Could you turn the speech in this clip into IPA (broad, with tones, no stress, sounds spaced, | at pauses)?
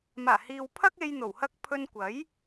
m aː˨˩ h iː˨ w pʰ ɐ˥ k̚ e˧ j n̪ o˨˩ w h ɐ˥ k̚ pʰ ɵ˧ n kʷ ɐ˨˥ j